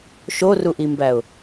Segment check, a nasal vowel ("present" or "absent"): absent